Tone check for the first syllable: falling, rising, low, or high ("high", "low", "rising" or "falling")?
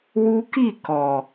high